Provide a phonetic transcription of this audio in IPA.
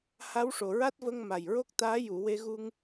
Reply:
h a˧˥ w ʂ o˨˩ ɹ a˦˥ t̚ v ə˧ ŋ m a˨˩ j ɹ o˦˥ k̚ t̪ aː˧˥ j u˨˩˨ w e˧ ɣ u˧ ŋ

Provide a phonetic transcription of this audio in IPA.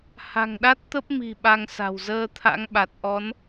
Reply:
h a̤˨˩ ŋ ɗ a˦˥ t̚ t̪ ə˦˥ p̚ m i̤˨˩ ɓ a˧ ŋ s a̤˨˩ w z əː˧ t̪ʰ a̰˧˥ ŋ ɓ a˨˩ t̚ ʔ ɔ˨˦ n

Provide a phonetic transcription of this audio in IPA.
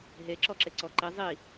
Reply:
ɦ e ǁ ɔ ǁ e ǀ ɔ ǃ i zˤ i

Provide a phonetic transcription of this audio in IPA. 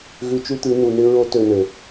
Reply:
ɣ ʉ˧ t͡ʃ ʉ˦ t̪ ʉ˨˦ n u˨ n ɪ˦ ɹ o˦ t ø˧ n ø˨

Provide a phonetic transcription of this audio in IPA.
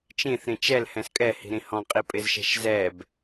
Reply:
t͡ʃ ĩ θ ɾ ĩ t͡ʃ ɛ l h ɛ̃ s kʼ ɛ h i̤ ɾ ĩ h ɔ̃ qʼ i pʼ ɪ z ʃ ɛ̤ ʃ z ɛ b

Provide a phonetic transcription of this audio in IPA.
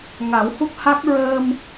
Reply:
ŋ a˨˩˦ w h u˦˥ k̚ h a˦˥ k̚ ɹ əː˧ m

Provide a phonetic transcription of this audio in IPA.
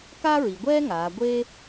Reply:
k a˥ ɹ i˩˧ ɡʷ ɛː˥ ŋ aː˩˧ ɡʷ e˥

